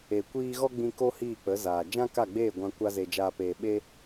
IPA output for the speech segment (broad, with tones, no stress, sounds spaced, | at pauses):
e˨ kʷ iː˧ ɣ ɔ˦ ɡ͡b ĩ˧ k o˦ h iː˦˨ k͡p ə˨˦ z aː˨ d͡ʒ ã˦ k a˦˨ ɡ͡b eː˦˨ ɡʷ ã˧ kʷ a˦ z e˧ d͡ʒ aː˧ p eː˧ ɓ e˦